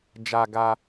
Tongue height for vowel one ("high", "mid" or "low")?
low